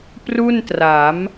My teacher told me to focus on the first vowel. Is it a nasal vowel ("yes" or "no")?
no